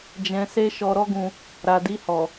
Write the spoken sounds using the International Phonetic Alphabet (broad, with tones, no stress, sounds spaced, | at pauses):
d͡ʒ ɛ̃˧ s e˦ ʃ ɔ˧ ɾ ɔ˦ ɡ ũ˧ | ɾ a˨ d i˧ h ɔ˨